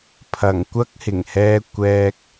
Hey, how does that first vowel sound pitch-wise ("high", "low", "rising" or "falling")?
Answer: low